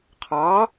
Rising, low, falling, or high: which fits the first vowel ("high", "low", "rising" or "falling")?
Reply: rising